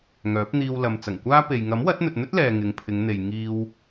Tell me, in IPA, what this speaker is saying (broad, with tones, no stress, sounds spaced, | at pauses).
ŋ œː˨˥ p̚ n̪ iː˧ w l ɐ˨ m t͡s ɐ˨˩ ŋ kʷ aː˥ p e˨ j ŋ ɐ˨˥ m w ɐ˨˥ t̚ n̪ ɵ˨ t̚ n̪ ɵ˥ t̚ l ɛː˧ ŋ ɪ˨˧ ŋ pʰ ɪ˨˧ ŋ n̪ e˨ j ŋ iː˧ w